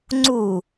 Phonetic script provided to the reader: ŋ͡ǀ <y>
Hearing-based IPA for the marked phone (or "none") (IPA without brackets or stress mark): u